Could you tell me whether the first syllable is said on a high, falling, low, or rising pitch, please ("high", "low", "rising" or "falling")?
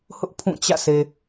high